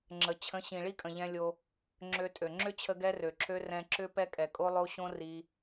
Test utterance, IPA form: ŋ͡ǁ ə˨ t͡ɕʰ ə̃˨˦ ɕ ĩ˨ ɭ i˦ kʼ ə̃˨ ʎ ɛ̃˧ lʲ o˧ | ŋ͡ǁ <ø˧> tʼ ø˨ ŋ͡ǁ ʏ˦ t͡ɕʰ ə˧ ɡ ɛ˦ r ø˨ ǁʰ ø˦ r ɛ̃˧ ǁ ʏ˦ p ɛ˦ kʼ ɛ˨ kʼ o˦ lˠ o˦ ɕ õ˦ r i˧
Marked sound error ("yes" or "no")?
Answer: no